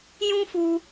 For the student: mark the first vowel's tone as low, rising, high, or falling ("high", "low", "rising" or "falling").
high